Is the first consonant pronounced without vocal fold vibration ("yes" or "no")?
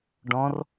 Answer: no